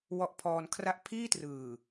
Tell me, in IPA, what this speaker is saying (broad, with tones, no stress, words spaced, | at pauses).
wɔ˦˥ʔpʰɔː˧nkʰra˥˩ʔ pʰiː˥˩trɯː˨˩